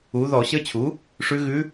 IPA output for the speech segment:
u˩˥ ðɔ˧˩˧ɕə˧˥t͡ɕʰu˩˥ | ʂʉ˧˥ɣʉ˧˥

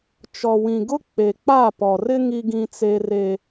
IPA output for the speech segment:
t͡ʃɔ˨wĩ˨ɡʊ˦ k͡pe˨k͡pa˦˨pɔ˨rɪ˦ ŋi˦ɡĩ˦t͡se˦re˦

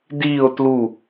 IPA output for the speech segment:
diːo̯ tlu

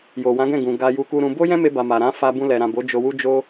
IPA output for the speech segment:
jo˨wã˨˦ɡɛ̃˦˨ ɡũ˨ ɡa˧ ju˧ku˧ɾũ˧ bo˦jɛ̃˦me˧ba˨ ma˨ɾã˨˦ fa˧bũ˧lɛ˨ɾã˨ bo˨˦ d͡ʒo˧wu˦d͡ʒo˦

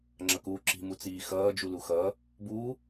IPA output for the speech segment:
ŋ͡ǁʌkuː ǁi̤ mut͡siːxʌː d͡ʒuluxʌ | bu

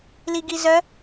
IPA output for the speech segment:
liɡizœ

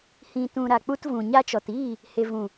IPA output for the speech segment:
hĩ˨tũ˨ ɾa˨k͡pu˧tvũ˨ ɲa˧t͡ʃɔ˨tiː˦˨ | he˨vũ˨

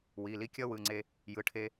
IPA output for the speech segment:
wi˩˧˩li˥ kʲʌ˥wɯ˩˧˩ŋ͡ǀe˧ | jɯ˩˧˩ʈʰe˧

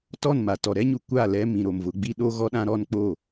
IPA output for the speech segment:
tɔ˦˨nma˨ tɔ˨ɾɛ˦ɲu˨kʷa˦˨ lɛ˦mĩ˨ɾo˨m vʊ˨˦ɡ͡bi˦ ɗo˦ ɣɔ˦ɗã˦ɾɔ˦n k͡po˦˨

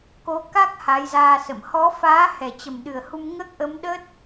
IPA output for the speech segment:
ko˨˦ka˦˥k̚ ha˨˦jzaː˧sə̰˧˨m hɔ˨˦faː˨˦ hɛ˨˩t͡ɕə˨˩mɗɨ˨˩ə̯hu˧m ŋəː˦˥k̚ʔə˨˦m ɗə˦˥t̚

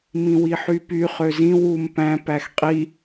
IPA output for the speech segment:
mĩwiħypy χøzĩ wum pæ̃ pæxqʼi

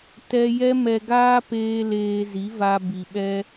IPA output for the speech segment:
tɛ˦ jɛ˦mɛ˧ɡaː˦ peː˧ leː˧zi˨˦ va˧ bi˨ɓɛ˧

